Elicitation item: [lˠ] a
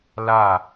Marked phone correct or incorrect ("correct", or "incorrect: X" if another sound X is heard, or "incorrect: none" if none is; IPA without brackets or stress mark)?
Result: incorrect: l